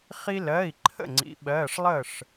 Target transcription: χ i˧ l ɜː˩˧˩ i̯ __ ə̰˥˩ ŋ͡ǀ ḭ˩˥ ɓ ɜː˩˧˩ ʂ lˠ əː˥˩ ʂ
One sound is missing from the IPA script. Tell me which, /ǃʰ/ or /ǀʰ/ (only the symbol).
ǃʰ